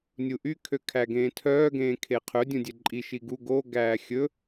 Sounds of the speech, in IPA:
nʲuʔy kʰøkʰæɡẽːtʰœː ɡẽːkʰeqʰɵ dʲũdʲɛǃʼi ʃiɡu ɡo ɡæːxʲɵ

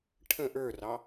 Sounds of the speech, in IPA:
ʈʰə̃ ʔə˞rɑ

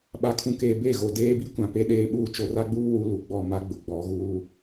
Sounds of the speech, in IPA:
ɓa˨kʰũ˨keː˨ be˦˨ɣo˨ deː˦bi˦kʷã˨ pe˦ɗeː˦ɓuː˦ t͡ʃo˨ra˦ɡ͡buː˦ wu˦lu˨ɡ͡bɔ˦˨ma˦ ɡ͡bʊ˨ ɡ͡bɔ˨˦ɣuː˦

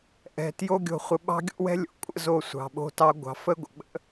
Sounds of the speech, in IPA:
ʔɛ̤˧ tjo˦ɡʲo̤˧χʷə˧ ɓɑ̤˦ɡʲo̰˦wɛ̤˦ lʲo̰˨kʷʼə̰˦zo˧ sʷɑ̤˨ɓo̤˧tɑ˧ ɡʷɑ̤˨˦fə˦ɡʷə̰˨ ɓə̰˦

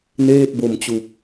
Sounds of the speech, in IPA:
neː˥˩t̚bo˨˩m t͡ɕu˨˩k̚

